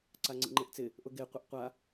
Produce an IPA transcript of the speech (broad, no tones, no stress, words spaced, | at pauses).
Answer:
ǀaŋ͡ǀḭŋ͡ǃeʔt͡sɪ | ʔʊɡe qʷeʔqʷa